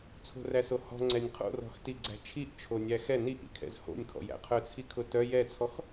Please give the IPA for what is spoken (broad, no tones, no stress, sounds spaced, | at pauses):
t͡sʰ o̤ r æ s o h ɔ̤ ŋ͡ǀ ɛ nʲ qʰ o̰ r ɔ̤ x t i ɡ͡ǀ æ̤ t͡ʃʰ i ʔ t͡ʃʰ o nʲ æ x ɛ n i ʔ ḭ kʰ ɛ̰ z h o̰ nʲ kʰ ɔ̰ j æ̰ qʰ œ t͡sʰ i kʰ ʊ t œ j ɛ t͡sʰ ɔ x